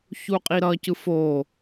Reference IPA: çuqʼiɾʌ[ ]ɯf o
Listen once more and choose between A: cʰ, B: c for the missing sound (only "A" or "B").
B